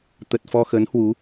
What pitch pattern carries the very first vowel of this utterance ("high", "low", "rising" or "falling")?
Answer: low